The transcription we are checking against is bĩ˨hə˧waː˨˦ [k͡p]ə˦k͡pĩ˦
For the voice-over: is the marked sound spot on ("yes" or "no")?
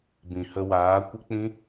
no